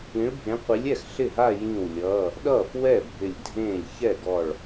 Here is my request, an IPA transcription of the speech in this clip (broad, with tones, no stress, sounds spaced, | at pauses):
ĩ˨˦ ɭ bʱ ẽ˨˦ qʷ i˨˦ lʲ ɛ˥˩ x ɬ ɪ˥˩ ɦ a˥˧ j ĩ˧˩ w lʲ ʌː˩˧˩ | ɗ ʌː˥˩ f w ɛ˥˩ bʱ ɪ˧˩ lʲ dʱ ẽː˥˩ lʲ ç ɛ˥˩ ɡ ɔ˧˩ ɭ